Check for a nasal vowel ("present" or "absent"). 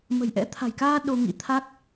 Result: absent